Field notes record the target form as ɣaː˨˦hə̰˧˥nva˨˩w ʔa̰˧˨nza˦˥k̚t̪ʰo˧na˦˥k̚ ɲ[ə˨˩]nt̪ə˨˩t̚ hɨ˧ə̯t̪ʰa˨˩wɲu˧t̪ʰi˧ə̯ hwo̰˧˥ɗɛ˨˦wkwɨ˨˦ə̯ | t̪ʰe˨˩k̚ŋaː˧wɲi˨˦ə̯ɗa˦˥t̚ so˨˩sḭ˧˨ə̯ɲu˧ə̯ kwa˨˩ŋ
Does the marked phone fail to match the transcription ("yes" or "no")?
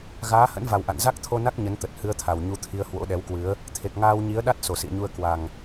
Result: yes